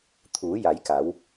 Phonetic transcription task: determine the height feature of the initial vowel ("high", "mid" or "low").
high